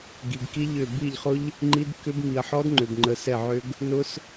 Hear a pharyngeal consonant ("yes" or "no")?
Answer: yes